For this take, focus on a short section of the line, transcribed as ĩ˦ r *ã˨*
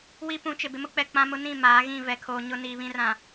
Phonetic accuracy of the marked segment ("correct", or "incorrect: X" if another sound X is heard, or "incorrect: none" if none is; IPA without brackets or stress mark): correct